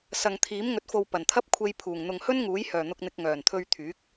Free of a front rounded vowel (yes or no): no